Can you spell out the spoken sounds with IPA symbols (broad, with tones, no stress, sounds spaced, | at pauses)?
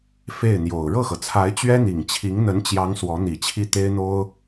f e˥˩ ɪ̯ n̪ j o˨˩ ʊ̯ ɻ ɤ˥˩ x ɤ˩ t͡sʰ a˧˥ ɪ̯ t͡ɕ ɥ ɛ˥ n̪ i˨˩ ŋ t͡ɕʰ i˧˥ ŋ n̪ ə˧˥ n t͡ɕ j ɑ˧˥ ŋ s w ɔ˧˥ n̪ i˨˩ t͡ɕʰ i˥˩ t̪ e˥ ɪ̯ n̪ o˥ ʊ̯